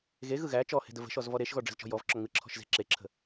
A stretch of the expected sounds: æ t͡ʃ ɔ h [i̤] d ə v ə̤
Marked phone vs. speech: incorrect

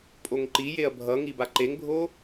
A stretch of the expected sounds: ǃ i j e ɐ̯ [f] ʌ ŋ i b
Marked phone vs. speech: incorrect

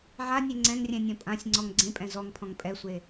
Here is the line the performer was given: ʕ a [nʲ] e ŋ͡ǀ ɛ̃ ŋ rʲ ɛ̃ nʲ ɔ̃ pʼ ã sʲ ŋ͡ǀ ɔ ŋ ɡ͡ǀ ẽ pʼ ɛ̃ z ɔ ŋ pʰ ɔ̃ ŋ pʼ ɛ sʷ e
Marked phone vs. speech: correct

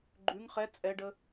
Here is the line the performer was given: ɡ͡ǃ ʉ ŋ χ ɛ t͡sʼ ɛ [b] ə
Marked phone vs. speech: incorrect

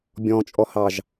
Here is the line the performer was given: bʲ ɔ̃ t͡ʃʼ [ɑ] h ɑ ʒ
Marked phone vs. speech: incorrect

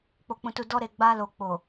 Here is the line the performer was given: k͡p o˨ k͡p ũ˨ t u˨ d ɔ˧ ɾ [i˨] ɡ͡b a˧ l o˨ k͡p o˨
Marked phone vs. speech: incorrect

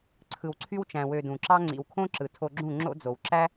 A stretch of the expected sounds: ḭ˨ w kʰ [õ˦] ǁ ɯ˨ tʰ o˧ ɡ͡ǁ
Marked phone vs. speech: correct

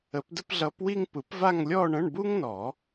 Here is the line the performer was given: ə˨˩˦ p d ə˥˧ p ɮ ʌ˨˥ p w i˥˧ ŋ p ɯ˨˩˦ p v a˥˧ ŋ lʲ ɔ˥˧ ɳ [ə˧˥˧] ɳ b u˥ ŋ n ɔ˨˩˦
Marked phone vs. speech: incorrect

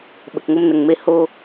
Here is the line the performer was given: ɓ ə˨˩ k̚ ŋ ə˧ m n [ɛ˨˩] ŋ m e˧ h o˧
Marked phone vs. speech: incorrect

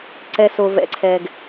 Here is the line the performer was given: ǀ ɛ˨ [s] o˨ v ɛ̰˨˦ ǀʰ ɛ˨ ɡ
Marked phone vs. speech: correct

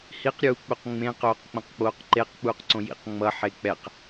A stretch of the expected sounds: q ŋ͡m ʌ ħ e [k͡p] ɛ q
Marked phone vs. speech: correct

